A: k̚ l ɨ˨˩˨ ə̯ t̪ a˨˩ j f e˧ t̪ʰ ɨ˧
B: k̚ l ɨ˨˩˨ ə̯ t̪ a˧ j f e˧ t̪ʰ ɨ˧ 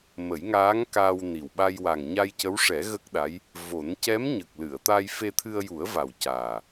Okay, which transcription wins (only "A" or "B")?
B